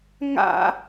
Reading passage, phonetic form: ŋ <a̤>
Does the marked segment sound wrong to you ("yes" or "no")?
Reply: yes